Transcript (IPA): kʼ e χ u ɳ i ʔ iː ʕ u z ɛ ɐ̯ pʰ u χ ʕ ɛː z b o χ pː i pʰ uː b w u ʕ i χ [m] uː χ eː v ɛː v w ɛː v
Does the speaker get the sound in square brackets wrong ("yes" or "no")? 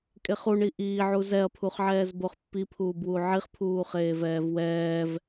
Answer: yes